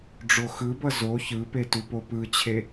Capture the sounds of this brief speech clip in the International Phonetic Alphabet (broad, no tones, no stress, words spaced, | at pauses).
ɖ͡ʐoxɯbʌ zo çɯpe tupopɯt͡ɕʰe